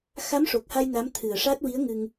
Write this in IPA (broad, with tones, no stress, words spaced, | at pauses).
xa˧˥mʂo˨˩k̚ha˧j na˧˥mt̪ʰɨ˨˩ə̯ʂa˦˥t̚ wi˧˥ə̯ŋɨ˧ŋ